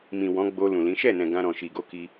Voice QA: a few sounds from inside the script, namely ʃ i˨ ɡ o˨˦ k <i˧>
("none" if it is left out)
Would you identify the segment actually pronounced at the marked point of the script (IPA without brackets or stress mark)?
i˧